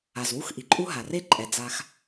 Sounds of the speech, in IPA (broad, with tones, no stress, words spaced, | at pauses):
a˩zwu˦xʔi˩ǃʼu˦ ɦa˩re˥ǃʼɛ˩ d͡za˨x